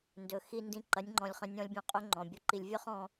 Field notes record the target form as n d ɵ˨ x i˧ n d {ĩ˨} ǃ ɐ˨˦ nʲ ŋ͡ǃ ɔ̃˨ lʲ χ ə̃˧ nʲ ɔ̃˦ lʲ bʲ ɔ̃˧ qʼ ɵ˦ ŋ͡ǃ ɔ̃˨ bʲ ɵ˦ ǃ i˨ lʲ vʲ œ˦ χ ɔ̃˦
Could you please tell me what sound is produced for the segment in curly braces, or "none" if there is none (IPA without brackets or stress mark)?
ĩ˨